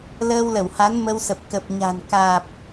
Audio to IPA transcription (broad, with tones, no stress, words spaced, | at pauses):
ləː˧wlə˧˩wha˨˦n mə˧wsə˨˩p̚ kə˨˩p̚ɲa̤˨˩n kaː˨˩p̚